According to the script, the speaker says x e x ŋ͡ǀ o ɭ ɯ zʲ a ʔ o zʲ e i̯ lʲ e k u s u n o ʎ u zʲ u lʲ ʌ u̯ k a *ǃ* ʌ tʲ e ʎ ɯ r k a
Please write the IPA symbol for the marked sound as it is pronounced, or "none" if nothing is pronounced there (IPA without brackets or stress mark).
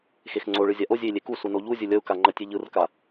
ŋ͡ǃ